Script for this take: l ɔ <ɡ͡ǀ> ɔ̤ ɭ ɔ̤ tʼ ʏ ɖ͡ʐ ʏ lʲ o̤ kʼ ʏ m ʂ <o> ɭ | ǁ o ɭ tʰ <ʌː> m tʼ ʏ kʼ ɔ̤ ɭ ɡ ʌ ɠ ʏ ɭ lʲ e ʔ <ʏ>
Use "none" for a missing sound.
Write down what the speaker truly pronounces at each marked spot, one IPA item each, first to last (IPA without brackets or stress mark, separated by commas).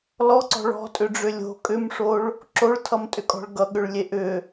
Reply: ǀ, o, ʌ, ʏ